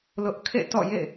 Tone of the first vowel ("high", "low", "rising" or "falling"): high